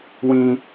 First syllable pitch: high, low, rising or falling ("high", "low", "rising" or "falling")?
high